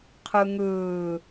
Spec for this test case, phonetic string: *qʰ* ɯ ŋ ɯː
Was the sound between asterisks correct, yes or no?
yes